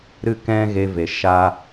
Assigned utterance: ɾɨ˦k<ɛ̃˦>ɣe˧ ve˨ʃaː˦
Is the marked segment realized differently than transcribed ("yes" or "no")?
no